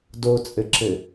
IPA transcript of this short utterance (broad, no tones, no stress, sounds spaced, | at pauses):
d o t͡sʼ ɘ ǁ ɘ